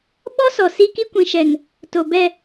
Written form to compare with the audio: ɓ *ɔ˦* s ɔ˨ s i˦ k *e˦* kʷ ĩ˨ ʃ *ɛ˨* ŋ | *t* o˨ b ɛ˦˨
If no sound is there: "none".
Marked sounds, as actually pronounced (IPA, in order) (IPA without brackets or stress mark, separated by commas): ɔ˦, i˦, ɛ˨, t